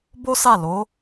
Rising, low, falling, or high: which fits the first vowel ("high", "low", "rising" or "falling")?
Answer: high